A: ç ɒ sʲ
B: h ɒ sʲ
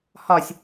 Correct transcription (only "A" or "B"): B